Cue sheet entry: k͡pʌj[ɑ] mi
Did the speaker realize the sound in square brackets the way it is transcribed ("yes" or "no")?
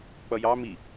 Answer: yes